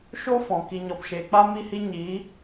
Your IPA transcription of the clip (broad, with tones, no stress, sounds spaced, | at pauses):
ʃ o˦ f ɔ̃˨ k i˨ ɲ ɔ˨ p ʃ eː˨ k͡p a˦ m i˦ h i˦ ɲ iː˨˦